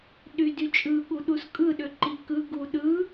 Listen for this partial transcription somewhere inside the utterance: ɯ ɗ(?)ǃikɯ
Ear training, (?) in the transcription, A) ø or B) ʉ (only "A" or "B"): A